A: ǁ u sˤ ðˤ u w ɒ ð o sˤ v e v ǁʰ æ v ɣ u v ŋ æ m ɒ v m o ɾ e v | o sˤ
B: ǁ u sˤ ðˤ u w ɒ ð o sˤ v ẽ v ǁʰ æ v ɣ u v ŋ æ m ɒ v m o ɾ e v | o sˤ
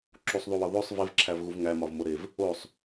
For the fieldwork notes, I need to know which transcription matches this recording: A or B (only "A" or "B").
A